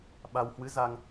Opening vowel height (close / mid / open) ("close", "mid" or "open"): open